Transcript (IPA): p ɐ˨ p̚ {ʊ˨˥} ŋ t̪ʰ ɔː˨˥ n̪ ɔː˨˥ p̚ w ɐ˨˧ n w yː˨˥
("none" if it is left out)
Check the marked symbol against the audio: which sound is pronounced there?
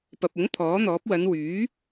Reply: ʊ˨˥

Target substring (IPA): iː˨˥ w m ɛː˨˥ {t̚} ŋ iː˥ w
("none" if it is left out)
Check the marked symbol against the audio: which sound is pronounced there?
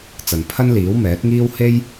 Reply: t̚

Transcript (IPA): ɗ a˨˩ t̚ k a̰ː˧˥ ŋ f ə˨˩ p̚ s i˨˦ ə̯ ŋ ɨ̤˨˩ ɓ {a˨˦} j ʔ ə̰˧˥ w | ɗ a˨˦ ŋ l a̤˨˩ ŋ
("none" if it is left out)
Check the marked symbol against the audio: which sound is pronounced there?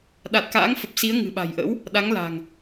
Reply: a̤˨˩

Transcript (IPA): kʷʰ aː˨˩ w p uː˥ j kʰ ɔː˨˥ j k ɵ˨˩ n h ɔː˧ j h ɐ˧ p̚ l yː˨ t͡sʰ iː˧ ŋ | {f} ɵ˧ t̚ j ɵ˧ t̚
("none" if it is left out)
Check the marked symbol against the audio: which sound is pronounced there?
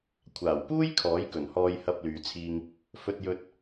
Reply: f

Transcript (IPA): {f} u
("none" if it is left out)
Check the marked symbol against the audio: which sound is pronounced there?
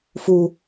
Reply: f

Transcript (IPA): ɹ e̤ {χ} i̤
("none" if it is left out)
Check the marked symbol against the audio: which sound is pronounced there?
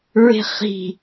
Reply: χ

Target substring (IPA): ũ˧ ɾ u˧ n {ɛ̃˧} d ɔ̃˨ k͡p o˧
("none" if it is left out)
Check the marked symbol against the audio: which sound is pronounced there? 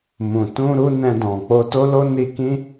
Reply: ɛ̃˧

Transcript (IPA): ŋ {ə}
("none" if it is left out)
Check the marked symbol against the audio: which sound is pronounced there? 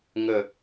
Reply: ə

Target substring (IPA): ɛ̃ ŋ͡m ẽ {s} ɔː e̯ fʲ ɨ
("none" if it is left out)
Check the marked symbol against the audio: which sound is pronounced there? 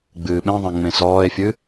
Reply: s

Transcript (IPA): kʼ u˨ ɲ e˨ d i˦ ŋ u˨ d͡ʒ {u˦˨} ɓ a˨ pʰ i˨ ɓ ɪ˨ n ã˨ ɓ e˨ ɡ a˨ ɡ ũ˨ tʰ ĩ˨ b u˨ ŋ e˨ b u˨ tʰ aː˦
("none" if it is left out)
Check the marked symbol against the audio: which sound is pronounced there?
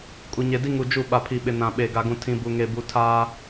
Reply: u˦˨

